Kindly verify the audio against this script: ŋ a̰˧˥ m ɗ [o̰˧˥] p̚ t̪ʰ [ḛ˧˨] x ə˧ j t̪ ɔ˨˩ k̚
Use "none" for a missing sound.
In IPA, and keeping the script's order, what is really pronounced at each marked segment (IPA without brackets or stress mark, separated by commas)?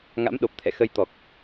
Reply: o˨˩, ɛ̰˧˨